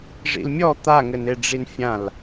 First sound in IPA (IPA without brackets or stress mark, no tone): ʐ